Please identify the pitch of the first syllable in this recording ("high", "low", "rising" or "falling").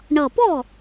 low